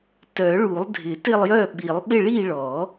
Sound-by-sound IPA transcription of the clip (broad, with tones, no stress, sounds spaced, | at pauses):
t œ˨˩˦ ɭ u˨˩˦ lˠ dʱ ɪ˨˩˦ t ɪ˦˨ lˠ j œ˦˨ ɓ i˨˩˦ lˠ ɓ ɪ˦˨ ɭ i˦˨ ɭ ɔ˨˩˦